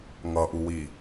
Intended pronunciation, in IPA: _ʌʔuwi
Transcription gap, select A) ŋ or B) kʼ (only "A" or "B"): A